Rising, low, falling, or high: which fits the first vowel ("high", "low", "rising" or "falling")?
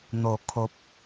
low